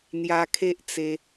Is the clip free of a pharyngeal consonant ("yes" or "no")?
yes